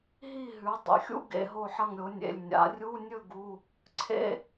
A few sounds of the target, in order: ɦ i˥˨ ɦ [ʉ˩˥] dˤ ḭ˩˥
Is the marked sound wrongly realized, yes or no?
no